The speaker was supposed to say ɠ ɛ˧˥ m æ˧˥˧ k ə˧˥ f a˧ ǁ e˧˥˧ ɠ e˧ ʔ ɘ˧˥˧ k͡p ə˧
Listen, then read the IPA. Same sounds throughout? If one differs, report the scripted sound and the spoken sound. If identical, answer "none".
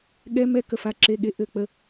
æ˧˥˧ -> ɛ˧˥˧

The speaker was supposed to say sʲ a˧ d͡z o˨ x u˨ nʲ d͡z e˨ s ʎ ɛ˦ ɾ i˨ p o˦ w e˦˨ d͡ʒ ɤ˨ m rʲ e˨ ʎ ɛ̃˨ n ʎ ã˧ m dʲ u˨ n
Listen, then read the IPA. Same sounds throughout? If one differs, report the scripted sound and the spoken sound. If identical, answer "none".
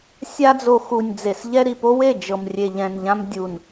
none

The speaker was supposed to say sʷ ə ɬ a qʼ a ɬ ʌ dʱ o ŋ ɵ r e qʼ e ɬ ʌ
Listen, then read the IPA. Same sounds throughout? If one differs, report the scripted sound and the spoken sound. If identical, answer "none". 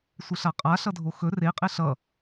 ŋ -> x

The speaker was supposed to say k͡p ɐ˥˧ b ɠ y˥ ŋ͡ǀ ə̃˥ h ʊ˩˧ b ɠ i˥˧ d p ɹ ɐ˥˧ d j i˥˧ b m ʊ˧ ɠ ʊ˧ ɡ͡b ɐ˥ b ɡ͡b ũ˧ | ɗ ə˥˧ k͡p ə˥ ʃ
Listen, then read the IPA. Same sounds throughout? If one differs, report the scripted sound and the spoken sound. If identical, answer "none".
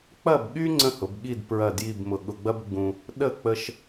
none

